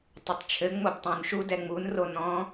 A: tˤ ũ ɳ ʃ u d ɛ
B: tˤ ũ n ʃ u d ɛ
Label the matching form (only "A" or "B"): B